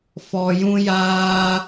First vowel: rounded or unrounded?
rounded